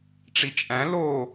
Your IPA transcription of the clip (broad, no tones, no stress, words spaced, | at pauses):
ʈ͡ʂit͡ʃʼæ̃ lo